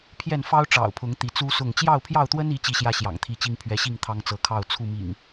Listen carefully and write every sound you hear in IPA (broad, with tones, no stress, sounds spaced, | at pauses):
pʰ j ɛ˥˨ n f ɑ˦ ʊ̯ ʈ͡ʂ ɑ̰˨˩ ʊ̯ pʰ ʊ˨˦ ŋ t̪ i˨˦ t͡s u˦ s ʊ˥˨ ŋ t͡ɕ j ɑ˥˨ ʊ̯ pʰ j ɑ˥˨ ʊ̯ t̪ w ə˦ n i˨˦ t͡ɕ i˦ ɕ j ä˦ ɕ j ɑ̰˨˩ ŋ t̪ʰ i˥˨ t͡ɕ i˦ ŋ pʰ ɥ ɛ˨˦ ɕ i˥˨ ŋ t̪ʰ ɑ˦ ŋ t͡s ɤ˨˦ kʰ ɑ˥˨ ʊ̯ t͡sʰ u˥˨ m ḭ˨˩ ŋ